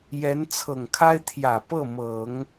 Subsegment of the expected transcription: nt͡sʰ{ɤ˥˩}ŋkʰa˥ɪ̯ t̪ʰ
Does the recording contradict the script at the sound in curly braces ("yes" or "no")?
yes